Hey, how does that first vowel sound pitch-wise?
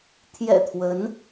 low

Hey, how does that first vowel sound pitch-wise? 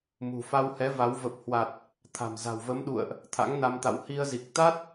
low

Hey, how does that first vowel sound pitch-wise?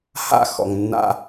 falling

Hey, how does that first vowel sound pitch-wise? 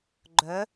rising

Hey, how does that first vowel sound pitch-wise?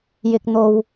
low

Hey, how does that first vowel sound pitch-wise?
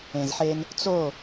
low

